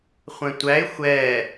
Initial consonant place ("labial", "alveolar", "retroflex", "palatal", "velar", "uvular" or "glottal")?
uvular